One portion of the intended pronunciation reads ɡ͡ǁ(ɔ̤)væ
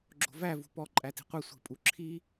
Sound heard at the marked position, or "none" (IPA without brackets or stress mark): o̤